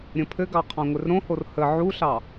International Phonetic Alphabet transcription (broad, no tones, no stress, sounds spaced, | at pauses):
ɾʲ ə̃ pʰ ɘ ɡ ɑ qʰ ɑ̃ ŋʷ ɪ r ɾ õ h o r h ə ʕ u ɬ ɑ